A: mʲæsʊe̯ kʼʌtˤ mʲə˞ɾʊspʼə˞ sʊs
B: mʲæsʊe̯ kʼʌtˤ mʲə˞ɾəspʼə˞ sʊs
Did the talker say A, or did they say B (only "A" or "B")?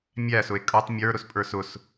A